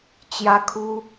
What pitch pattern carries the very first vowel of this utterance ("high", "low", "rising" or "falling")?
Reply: high